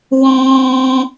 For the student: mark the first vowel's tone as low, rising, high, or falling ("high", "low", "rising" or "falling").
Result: high